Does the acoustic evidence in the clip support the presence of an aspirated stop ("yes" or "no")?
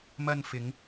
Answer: no